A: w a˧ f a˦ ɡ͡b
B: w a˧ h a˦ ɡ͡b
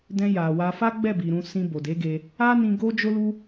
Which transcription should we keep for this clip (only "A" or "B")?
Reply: A